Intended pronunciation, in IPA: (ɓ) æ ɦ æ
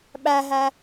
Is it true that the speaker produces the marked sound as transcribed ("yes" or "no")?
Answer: yes